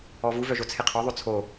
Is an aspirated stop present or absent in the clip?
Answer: present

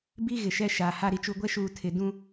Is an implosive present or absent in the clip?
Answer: absent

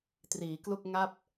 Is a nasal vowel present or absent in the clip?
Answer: absent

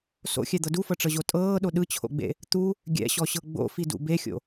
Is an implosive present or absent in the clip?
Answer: present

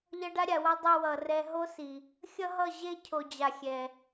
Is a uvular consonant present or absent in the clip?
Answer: absent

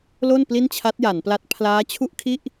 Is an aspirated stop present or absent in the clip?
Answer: present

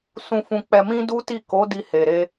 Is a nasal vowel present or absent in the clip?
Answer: present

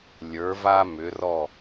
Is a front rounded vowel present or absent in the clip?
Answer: present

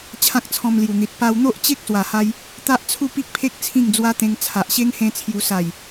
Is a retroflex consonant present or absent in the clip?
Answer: absent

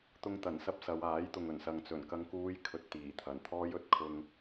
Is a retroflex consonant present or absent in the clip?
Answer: absent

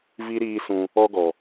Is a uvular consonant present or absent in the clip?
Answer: absent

